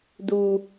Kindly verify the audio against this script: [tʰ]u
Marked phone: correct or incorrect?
incorrect